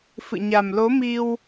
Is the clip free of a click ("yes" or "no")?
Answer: yes